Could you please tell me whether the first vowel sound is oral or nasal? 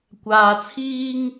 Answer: oral